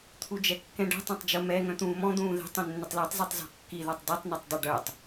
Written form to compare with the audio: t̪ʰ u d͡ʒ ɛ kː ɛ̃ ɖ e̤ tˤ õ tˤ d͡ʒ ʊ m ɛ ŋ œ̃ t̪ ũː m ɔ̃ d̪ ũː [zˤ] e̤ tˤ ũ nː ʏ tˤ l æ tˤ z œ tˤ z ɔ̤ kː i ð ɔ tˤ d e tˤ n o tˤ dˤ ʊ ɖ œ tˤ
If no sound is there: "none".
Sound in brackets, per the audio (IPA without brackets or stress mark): ð